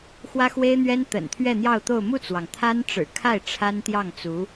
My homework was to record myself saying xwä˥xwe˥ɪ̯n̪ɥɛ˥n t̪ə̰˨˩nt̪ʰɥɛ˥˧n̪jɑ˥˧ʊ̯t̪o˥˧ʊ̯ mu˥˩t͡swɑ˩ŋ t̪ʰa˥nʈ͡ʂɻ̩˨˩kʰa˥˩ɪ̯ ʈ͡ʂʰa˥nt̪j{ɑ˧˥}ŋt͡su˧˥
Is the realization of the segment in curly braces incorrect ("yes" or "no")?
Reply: yes